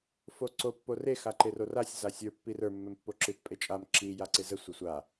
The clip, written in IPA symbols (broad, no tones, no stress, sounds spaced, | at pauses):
f o ǀ o pː o r e x a ǃ e r o r a sʲ z a sʲ ə˞ pː i r ə˞ mː ɛ m pː o ǁ ɨ t pʼ e t͡ʃʼ a m ǁ i j a ǀ e z ə sʷ ə sʷ a